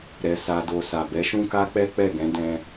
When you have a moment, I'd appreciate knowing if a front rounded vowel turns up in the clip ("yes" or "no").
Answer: no